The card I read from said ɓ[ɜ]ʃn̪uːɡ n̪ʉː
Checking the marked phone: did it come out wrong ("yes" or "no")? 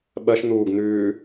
no